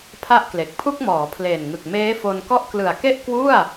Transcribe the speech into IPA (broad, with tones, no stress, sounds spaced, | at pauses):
pʰ a˥˩ ʔ k l e˨˩ k̚ pʰ u˥˩ k̚ m ɔː˩˦ pʰ l eː˨˩ n ŋ ɯ˨˩ k̚ m eː˦˥ f o˧ n k ɔ˥˩ ʔ k l ɯ˨˩ a̯ k e˥˩ ʔ k w u˥˩ a̯